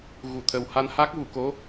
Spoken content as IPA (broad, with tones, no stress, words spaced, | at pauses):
ɣu˨˩˨t̪ʰə˨˩wha˧nha˦˥k̚ vu˨˩˨ko˧˥